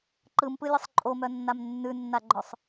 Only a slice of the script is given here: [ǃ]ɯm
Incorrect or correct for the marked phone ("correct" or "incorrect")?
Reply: correct